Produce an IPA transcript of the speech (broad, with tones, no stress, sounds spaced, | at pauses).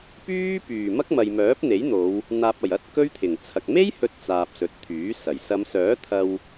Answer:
p yː˥ p yː˨˩ m ɐ˥ k̚ m ɐ˨ j m œː˨˥ p̚ n̪ e˨˥ j n̪ o˨˧ w | n̪ aː˨ p̚ ɐ˨˩ j ɐ˧ t̚ k ɵ˥ ɥ t̪ʰ ɪ˨˩ ŋ t͡sʰ ɐ˨ k̚ m e˥ j h ɵ˨ t̚ t͡s aː˨ p̚ s ɵ˨ t̚ t̪ʰ yː˨˥ s ɐ˨˩ j s ɐ˨˧ m s œː˨˥ t̪ʰ ɐ˧ w